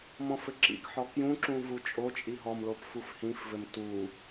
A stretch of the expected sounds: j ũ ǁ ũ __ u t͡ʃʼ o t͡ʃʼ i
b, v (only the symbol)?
v